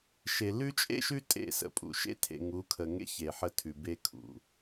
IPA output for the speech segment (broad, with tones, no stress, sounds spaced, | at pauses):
ʃ e˨ l ʉ˦ t͡ʃʼ ḛ˦ ʃ ʉ˦ tʼ ḛ˦˨ s ə̰˨ pʼ ṵ˨ ʃ ḛ˦ tʰ ḛ˨ ŋ u˨˦ kʰ ə˨ ŋ ḛ˦ ç e˨ ħ ə˦˨ tʰ ʉ˨ b e˦ kʰ ṵ˨